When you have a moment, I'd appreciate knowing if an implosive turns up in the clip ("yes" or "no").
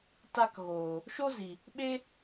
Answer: yes